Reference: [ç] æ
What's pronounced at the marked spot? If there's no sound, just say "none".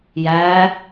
j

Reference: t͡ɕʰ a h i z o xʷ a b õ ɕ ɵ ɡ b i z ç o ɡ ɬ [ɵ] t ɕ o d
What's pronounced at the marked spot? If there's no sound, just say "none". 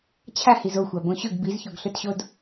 ɵ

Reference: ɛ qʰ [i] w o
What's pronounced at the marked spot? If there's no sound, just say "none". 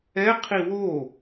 i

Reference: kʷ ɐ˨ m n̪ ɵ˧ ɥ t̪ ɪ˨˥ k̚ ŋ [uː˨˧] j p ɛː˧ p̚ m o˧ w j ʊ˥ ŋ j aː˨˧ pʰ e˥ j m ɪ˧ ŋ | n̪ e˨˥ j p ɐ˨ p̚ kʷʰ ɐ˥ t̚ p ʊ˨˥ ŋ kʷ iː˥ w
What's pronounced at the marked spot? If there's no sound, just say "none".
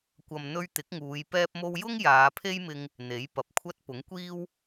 uː˨˧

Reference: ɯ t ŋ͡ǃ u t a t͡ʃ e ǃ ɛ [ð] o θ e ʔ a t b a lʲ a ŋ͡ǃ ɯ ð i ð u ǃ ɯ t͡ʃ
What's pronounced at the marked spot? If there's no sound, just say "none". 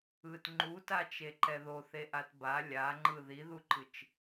ð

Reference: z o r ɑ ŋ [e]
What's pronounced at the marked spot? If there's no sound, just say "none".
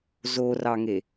e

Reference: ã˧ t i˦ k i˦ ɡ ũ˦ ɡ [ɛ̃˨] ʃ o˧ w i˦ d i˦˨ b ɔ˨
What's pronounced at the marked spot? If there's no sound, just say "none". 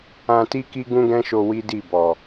ɛ̃˦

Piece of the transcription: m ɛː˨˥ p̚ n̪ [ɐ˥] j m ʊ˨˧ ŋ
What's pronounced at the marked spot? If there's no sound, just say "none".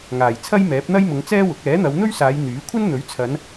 ɐ˥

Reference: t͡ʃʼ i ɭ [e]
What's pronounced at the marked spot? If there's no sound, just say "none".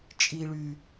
y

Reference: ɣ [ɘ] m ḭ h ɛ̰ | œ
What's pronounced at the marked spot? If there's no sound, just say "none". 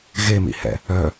e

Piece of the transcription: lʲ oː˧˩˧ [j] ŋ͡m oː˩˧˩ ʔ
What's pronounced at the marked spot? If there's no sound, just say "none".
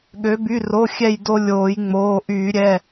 j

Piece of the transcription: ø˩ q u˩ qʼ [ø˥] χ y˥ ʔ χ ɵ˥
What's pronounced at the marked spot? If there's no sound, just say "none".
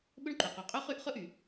ø˥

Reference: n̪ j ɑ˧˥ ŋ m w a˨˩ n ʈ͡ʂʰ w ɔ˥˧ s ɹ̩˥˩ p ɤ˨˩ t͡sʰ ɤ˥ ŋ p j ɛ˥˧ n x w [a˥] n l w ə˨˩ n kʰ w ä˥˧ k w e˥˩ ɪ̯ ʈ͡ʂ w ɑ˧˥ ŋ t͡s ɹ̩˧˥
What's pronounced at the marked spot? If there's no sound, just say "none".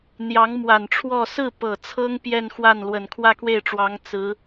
a˥˩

